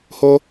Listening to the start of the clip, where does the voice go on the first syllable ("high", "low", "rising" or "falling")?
high